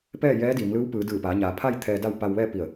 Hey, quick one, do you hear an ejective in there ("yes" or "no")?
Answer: no